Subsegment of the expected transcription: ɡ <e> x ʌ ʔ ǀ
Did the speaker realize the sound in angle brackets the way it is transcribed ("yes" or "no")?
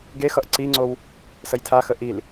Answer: yes